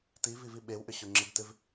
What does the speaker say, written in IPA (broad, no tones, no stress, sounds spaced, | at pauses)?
t i v i v i ɓ e w ʔ ʏ ɕ ʊ ŋ͡ǁ ɪ b t ɪ v